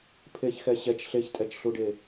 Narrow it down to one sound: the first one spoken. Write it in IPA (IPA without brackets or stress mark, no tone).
pʰ